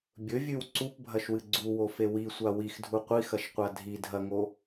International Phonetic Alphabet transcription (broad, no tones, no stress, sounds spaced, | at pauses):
bʲ ɵ vʲ ʉ w ǀ u p bʱ ɐ ʃ w ɨ ɡ͡ǀ u w o f e w i sʷ a w i x dʱ u qʷ i x ɐ ʃ qʷ a dʱ i dʱ ɐ ŋ o